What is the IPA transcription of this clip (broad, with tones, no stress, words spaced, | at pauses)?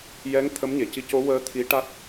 jɛ˧˥ŋ t̪ʰə˧˥mɲe˨˩˨ci˧ co˧˥wəː˧˥ t̪ʰi˧˥ ʈa˦˥t̚